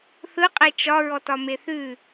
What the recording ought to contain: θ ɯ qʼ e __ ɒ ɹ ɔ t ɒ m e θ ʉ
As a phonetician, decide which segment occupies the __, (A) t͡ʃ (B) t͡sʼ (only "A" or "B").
A